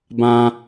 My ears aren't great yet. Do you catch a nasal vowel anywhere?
yes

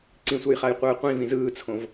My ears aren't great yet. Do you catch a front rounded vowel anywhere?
no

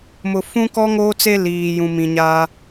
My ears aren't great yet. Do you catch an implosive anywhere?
no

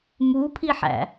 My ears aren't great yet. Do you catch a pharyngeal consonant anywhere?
yes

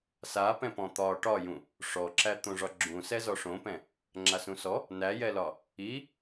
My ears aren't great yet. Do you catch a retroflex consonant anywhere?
yes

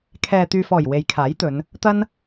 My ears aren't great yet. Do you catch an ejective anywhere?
no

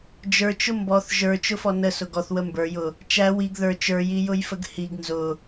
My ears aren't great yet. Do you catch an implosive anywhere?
no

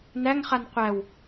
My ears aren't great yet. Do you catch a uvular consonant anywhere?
yes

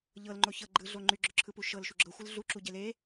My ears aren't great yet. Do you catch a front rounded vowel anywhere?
yes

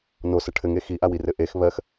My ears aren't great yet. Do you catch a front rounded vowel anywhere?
no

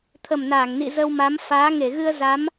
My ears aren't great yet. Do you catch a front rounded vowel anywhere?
no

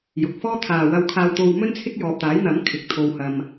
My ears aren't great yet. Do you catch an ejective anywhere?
no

